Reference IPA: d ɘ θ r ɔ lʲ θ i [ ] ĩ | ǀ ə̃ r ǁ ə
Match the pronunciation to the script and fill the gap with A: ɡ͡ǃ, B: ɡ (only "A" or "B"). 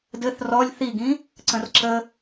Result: B